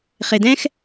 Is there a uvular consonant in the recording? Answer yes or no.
yes